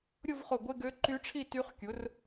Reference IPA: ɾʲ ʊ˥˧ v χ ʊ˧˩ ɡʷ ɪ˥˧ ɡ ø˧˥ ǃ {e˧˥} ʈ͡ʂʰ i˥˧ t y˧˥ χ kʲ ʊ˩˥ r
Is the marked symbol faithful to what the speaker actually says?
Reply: no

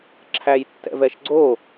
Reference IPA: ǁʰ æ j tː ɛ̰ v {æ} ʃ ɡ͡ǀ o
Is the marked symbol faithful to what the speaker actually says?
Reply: no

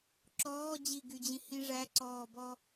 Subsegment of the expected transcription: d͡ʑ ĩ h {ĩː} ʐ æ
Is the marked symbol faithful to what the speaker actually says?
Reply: no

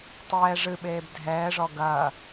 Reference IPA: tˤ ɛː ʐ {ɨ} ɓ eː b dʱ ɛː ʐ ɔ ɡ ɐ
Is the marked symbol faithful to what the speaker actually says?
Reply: yes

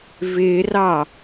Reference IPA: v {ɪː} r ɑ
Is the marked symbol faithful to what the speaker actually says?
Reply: yes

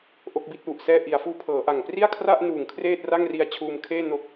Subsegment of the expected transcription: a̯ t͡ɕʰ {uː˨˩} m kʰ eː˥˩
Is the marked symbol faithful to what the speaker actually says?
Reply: no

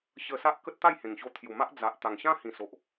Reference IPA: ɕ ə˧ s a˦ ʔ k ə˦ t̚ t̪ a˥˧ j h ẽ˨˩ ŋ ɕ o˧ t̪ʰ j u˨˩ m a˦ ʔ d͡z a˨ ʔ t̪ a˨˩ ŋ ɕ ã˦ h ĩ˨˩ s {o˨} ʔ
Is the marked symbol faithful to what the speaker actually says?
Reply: yes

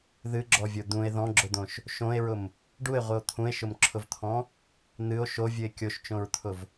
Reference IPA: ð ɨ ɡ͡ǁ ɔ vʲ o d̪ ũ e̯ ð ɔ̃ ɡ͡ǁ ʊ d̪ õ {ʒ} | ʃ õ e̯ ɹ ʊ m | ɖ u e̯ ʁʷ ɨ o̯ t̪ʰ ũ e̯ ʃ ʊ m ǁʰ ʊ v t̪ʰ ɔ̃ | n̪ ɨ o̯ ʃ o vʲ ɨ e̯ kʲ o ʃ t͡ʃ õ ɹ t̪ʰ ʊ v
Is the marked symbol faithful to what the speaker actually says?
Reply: no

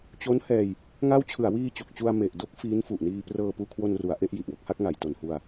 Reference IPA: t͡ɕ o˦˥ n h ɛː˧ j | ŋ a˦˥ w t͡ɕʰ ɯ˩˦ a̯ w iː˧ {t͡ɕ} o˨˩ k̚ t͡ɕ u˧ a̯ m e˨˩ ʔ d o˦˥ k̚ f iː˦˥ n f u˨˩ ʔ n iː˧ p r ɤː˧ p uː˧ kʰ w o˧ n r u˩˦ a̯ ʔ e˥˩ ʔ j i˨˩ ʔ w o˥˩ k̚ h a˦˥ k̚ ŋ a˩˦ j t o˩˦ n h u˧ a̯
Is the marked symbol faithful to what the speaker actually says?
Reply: yes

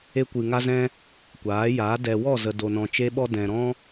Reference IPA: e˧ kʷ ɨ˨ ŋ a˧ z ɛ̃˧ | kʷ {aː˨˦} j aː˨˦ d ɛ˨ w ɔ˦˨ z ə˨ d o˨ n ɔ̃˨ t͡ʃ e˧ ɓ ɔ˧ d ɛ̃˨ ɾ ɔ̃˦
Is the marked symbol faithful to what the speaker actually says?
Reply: yes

